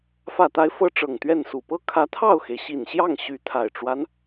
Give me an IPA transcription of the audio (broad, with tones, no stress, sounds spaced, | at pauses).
f ä˨˩ t̪ a˧˥ ɪ̯ f ɤ˥ ʈ͡ʂ ɤ˨˩ ŋ t̪ ɥ ɛ˥˩ n s u˨˩ p ɤ˥ kʰ ä˧˥ t̪ʰ ɑ˥˩ ʊ̯ x e˩ ɪ̯ ɕ i˨˩ n ɕ j ɑ˥˩ ŋ ɕ y˧˥ t̪ʰ a˨˩ ɪ̯ ʈ͡ʂ w a˦ n